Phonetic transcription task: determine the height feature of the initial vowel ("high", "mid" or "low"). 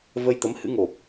mid